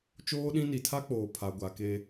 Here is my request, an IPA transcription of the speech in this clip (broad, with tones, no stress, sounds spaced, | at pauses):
t͡ʃ oː˦ ɗ ĩ˦ n i˨ tʰ a˦ k͡p oː˨ pʰ a˨ ɡʷ a˨ k e˦